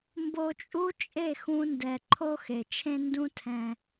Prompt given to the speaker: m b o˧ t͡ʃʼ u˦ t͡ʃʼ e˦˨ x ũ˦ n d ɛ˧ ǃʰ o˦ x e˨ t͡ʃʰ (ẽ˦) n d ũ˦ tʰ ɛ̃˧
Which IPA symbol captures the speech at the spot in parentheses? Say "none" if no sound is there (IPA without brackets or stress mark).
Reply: ẽ˦